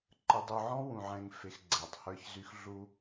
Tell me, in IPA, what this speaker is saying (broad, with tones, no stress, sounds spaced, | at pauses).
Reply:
ǃ ə˨ dˤ u˨ ʕ ɔ̃˦ w ũ˨ ʕ ɛ̃˨ ŋ f e˨ x ɡ͡ǀ ɛ˨ tˤ h ə˞˦ ç z y˦ x ɮ u˦